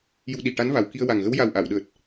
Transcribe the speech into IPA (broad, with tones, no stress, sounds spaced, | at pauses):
j u˧ ɗ i˨˩ ʈ a˧˥ n v a˨˩ w k i˧ ə̯ w a˨˩ ŋ ɣ ə˧˥ w j a˨˩ w ʔ a˨˩˨ w ɗ əː˨˩ t̚